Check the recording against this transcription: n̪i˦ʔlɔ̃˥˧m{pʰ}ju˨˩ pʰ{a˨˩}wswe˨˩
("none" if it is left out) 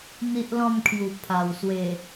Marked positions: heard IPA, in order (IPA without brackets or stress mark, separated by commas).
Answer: kʰ, a˨˩